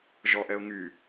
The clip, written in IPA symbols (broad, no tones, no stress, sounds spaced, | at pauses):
ʒ ɔ ʔ ɛ ʊ̯ ŋ y